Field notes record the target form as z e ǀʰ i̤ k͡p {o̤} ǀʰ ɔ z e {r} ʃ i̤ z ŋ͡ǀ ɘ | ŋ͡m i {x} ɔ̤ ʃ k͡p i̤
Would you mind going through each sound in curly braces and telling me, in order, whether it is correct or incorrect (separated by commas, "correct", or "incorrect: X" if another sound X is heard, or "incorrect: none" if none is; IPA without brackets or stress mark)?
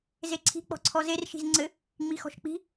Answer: incorrect: ɔ̤, correct, correct